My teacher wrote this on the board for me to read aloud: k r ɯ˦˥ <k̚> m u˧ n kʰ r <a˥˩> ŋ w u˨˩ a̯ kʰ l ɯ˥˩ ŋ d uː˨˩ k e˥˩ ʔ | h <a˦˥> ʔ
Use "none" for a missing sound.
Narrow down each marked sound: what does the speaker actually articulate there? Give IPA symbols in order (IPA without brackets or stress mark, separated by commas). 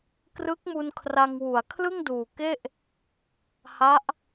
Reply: k̚, a˧, a˦˥